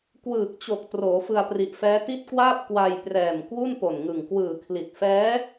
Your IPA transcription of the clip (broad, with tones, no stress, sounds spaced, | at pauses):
k w ɯː˨˩ k̚ t͡ɕ o˨˩ k̚ t r oː˩˦ f ɯ˧ a̯ p r i˨˩ ʔ f ɛː˦˥ t i˦˥ t̚ k w aː˥˩ p̚ k w a˧ j p r ɛː˨˩ m k w u˥˩ n p o˨˩ n ŋ ɯ˨˩ ŋ k w ɯː˨˩ kʰ l i˨˩ t̚ f ɛː˦˥